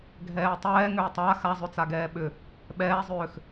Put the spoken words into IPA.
ɡʱɛːtˤɛːŋʏː tˤa xazˤʏt͡sa ɡɛːɓʏ | ɓɛːzˤʏːx

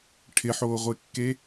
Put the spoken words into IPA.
ʈʰɪħoːʁʷekːe

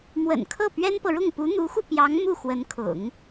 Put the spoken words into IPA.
mwə̰˨˩nkʰɤ˥˩ pɥɛ˥npɤ˨ɻʊ˥˩ŋ pu˧˥n̪u˧˥xu˧ pjɑ˧˥ŋ mu˥˩xwə˧˥nkʰʊ̰˨˩˦ŋ

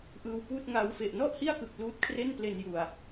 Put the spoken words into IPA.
ʔɯː˧wpuː˥˩t̚ŋa˦˥w fe˨˩ʔnɔ˥˩ʔhi˥˩a̯kɯ˨˩k̚ luː˦˥t̚kʰre˥˩nple˧nju˨˩a̯

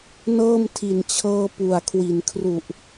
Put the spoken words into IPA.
nɤː˥˩mtʰi˨˩nt͡ɕʰɤː˧ pu˨˩a̯kʰwi˩˦nkʰru˨˩ʔ

